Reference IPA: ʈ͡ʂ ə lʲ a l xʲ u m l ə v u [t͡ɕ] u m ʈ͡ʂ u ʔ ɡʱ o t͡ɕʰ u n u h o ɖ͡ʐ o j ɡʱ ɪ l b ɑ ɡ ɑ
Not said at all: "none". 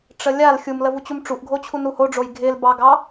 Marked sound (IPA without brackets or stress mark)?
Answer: t͡ɕ